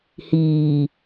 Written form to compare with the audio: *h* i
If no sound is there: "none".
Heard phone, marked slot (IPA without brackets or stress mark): h